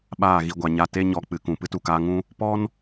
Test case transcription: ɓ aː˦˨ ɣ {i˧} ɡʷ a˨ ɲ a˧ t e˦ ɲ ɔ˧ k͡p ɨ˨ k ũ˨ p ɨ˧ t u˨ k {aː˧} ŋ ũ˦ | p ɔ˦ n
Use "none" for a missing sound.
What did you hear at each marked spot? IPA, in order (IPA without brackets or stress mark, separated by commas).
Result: i˧, aː˧